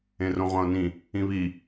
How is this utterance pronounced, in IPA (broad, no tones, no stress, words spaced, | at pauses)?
ẽrõʁʷãʊ̯nĩ | ĩβi